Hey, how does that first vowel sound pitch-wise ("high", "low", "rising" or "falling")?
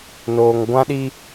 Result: low